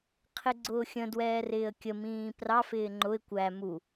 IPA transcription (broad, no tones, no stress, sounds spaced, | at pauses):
qʰ ɪ ɡ͡ǀ ʊː xʲ ə̃ d w ɛː r ɪː ə̯ kʲ ə m ĩː p r ɑ f ɪː ŋ͡ǃ ʊ ɪ̯ kʷ æ m u